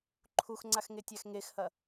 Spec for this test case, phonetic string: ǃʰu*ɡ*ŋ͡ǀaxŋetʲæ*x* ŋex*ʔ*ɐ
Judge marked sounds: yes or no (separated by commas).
no, yes, no